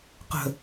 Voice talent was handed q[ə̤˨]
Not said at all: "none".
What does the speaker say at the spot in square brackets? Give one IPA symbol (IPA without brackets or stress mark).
ə̤˨